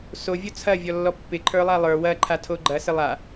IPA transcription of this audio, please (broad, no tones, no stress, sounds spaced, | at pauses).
s o vʲ o t͡sʰ ɐ vʲ ɔ lː ɔ pː ɪ ǃʰ ə˞ lˠ a lˠ ə˞ w ɐ ǃʰ a tʰ o ɡ͡ǃ ɐ s ɪ lˠ a